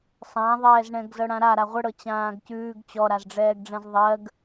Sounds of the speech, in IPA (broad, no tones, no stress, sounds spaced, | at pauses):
sˤ ã ðˤ ɛː z ɳ ɛ̃ ɡ z ɤ ɽ ã ɾ a ɾ a ʁʷ ə ɽ ɤ t͡ɕ ãː ɡ c ʉː ɡ t͡ɕ ɔ ɾ a z ɖ͡ʐ ɛː ɡ ɖ͡ʐ ɛ̃ z ðˤ ɜ ɡ